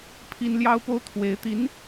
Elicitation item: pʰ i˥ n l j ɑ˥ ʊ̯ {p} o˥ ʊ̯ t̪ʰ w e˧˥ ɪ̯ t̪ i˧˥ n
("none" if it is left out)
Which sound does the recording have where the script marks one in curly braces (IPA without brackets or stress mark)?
p